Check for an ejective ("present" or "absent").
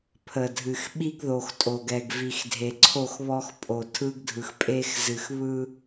present